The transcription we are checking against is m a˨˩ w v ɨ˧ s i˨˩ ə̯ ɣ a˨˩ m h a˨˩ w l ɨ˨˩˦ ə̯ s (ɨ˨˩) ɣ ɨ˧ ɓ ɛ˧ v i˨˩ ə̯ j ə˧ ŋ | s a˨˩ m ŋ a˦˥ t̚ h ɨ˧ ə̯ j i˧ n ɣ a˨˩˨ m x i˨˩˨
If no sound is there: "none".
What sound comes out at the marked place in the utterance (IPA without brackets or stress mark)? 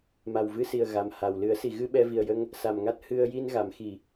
i˨˩